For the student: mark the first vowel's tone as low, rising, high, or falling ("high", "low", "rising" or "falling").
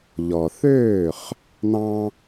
low